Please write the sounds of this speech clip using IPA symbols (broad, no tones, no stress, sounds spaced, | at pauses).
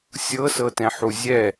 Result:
sʲ ɤ s ɤ t ɛ̃ ħ u zʲ ɛ